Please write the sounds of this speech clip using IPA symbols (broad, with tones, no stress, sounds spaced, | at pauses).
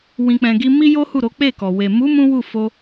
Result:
w ĩ˨ k͡p ɛ̃˨ ɡ i˧ m i˦ j o˦ h u˦˨ ɾ o˨˦ k͡p e˦˨ k ɔ˨ w e˨ m u˨˦ m ũ˦ w u˦˨ f o˧